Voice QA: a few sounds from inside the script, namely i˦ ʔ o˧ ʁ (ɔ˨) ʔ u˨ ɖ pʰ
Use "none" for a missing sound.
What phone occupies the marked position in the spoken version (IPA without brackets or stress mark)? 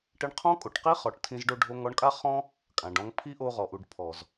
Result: ɔ˨